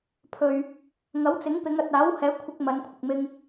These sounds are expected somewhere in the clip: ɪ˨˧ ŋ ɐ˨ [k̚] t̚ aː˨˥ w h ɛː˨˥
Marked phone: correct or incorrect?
incorrect